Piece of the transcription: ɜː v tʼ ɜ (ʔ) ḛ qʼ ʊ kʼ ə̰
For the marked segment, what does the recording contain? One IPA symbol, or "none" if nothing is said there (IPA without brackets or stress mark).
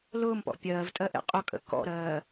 ʔ